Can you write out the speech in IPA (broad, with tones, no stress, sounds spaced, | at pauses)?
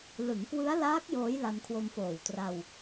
l ɯ˩˦ ŋ k w ɯ˦˥ a̯ l aː˦˥ k̚ j oː˦˥ j l a˧ n kʰ w o˧ m f oː˨˩ w t r a˧ w